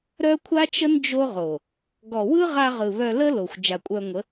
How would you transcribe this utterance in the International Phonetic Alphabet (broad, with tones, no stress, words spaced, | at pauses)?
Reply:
ɾœ˦kʷʰa˦t͡ʃə˦n d͡ʒo˦ʁo˨ | ɡɔ˨wɯ˦ʁa˧ʁɯ˨ βœ˧lə˦lo˨xʷ d͡ʒa˨kʷʼœ˧ŋʷə˨˦